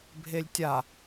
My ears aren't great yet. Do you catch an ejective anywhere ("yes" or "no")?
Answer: no